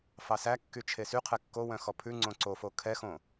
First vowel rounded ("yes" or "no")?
no